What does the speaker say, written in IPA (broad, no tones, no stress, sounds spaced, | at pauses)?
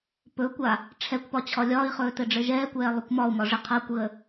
p ɵ kʷ a | ʈ͡ʂʰ ɛ kʷ p ɒ t͡ɕʰ ɒ lʲ ɒː i̯ χ ɵː t ɘ ɖ͡ʐ ɘ ʒ ɛː kʷ ɛː lˠ ɵ kʷ m ɒ u̯ m ɒ ʐ ɪ qʰ a kʷ ɣ ə